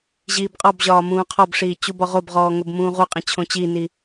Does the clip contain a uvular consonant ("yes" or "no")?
yes